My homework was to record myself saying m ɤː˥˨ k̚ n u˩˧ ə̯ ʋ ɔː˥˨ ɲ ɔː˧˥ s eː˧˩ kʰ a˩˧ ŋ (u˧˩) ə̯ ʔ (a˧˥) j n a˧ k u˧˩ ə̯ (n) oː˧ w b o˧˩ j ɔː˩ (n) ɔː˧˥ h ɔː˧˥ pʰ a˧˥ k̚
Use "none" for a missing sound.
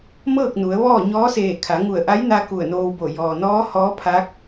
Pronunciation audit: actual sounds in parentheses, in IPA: u˧˩, a˧˥, n, n

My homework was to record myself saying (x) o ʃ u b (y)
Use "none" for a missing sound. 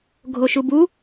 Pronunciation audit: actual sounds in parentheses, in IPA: ɡʱ, u

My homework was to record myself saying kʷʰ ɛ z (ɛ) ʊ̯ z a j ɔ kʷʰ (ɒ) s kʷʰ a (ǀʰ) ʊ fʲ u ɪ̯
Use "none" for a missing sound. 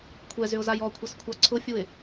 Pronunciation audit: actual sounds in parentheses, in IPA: ʏ, ʌ, ǀʰ

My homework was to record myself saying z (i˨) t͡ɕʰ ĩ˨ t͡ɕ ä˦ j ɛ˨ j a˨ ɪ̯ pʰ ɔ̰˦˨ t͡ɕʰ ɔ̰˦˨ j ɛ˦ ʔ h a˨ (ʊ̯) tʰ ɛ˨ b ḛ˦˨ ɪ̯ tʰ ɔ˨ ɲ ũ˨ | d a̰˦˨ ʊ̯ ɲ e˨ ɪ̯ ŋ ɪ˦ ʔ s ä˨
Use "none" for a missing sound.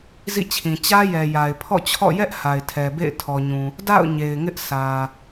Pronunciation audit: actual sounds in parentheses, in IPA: ḭ˦˨, ɪ̯

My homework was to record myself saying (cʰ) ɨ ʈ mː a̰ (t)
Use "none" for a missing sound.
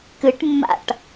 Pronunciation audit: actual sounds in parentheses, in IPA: k, ʈ

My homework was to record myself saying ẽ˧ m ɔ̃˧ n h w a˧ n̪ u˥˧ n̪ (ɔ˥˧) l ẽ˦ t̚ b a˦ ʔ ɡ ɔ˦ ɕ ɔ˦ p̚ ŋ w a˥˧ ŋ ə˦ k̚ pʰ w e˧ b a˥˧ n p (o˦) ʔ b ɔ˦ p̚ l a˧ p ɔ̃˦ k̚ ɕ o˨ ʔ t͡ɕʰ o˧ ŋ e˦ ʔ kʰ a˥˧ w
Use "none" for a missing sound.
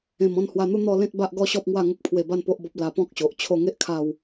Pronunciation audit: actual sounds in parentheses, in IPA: ɔ˥˧, o˦

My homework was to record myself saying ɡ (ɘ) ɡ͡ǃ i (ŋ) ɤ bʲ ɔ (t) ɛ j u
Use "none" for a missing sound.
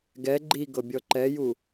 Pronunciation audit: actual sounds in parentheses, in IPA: ɛ, ɡ, ǃ

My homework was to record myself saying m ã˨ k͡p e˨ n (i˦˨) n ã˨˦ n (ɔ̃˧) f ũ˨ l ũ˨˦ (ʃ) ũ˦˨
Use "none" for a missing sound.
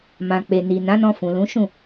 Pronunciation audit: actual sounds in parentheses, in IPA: i˨, ɔ̃˧, ʃ

